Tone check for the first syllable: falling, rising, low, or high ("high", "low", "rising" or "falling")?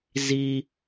high